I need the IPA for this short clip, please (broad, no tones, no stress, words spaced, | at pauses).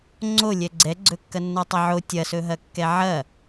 ŋ͡ǀolʲɛ ɡ͡ǀɛɡ͡ǀɵkːɐ nːʌtˤɐʕo tʲɐsɵɦɐ kːɛʕɐ